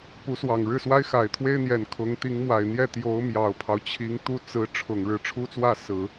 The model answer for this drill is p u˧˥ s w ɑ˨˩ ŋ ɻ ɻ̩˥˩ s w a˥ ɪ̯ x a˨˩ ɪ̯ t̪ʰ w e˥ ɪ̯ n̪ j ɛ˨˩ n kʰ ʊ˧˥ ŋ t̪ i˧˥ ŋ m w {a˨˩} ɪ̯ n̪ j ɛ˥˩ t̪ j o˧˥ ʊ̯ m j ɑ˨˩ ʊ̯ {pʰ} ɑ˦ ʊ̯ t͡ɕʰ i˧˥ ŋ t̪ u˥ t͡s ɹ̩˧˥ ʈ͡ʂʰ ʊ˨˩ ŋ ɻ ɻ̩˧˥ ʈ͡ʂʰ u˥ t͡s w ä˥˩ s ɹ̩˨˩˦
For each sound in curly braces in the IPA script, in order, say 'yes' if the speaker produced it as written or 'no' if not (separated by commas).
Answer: yes, yes